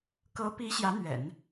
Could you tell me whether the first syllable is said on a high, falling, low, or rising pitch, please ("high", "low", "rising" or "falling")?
rising